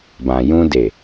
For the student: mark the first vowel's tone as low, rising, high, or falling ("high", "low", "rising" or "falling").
low